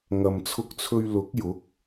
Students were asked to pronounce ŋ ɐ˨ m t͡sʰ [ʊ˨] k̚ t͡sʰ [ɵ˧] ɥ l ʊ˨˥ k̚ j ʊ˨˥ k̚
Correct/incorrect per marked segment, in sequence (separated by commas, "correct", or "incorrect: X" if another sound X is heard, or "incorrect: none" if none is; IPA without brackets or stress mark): incorrect: ʊ˧, correct